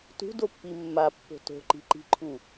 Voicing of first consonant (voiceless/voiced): voiceless